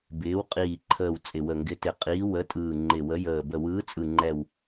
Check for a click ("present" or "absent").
present